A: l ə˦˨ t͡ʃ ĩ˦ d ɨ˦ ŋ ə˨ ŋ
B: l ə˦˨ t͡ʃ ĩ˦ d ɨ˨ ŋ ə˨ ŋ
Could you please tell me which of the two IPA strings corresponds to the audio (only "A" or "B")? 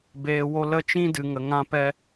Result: B